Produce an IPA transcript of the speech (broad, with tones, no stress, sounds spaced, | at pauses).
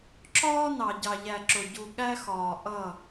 ǁ ɒː˦ n ɑ˨ ɟ ɑ˨ ʎ æ˨ ǁ ʊ˨ ɟ u˨ ɠ æ˦ x ɒː˨ ʔ ʌ˦˨